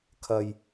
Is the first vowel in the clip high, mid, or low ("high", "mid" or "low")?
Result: low